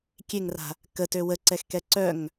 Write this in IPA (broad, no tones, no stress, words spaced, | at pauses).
kʲeŋra̤ | kətø wəǀɛxkɛ ǀœŋ